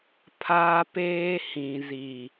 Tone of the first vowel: high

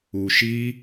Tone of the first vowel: low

